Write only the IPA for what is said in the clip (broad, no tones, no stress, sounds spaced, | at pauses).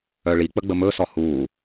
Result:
œ ɭ i k͡p ə ɡ͡b ə m ɵ s ɔ h u